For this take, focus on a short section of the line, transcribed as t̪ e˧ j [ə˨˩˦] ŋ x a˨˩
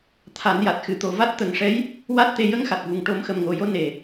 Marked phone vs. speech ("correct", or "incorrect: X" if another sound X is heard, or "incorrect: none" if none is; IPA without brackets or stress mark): incorrect: ə˧